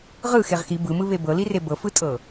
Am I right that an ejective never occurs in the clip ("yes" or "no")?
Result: no